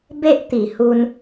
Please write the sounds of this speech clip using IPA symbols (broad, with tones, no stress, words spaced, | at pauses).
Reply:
be˦ʔ t̪i˨˩hu˧n